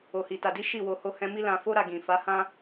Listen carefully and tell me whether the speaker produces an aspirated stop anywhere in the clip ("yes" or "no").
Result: no